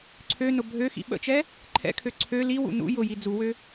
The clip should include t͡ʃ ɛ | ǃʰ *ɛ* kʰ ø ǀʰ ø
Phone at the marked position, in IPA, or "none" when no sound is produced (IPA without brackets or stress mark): ɛ̰